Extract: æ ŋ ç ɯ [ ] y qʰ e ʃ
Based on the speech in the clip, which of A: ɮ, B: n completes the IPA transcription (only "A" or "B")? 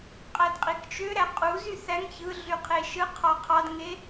A